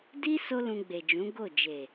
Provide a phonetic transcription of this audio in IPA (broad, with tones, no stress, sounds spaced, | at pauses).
d i˦ s o˦ l ũ˧ ɡ͡b e˨ d͡ʒ ũ˨˦ ɡ o˦˨ d͡ʒ e˨